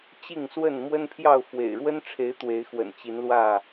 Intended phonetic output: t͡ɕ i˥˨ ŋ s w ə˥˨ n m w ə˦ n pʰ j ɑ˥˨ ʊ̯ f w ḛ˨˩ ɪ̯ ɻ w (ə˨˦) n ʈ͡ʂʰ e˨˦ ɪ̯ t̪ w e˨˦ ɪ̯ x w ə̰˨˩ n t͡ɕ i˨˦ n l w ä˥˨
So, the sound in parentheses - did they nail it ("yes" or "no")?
no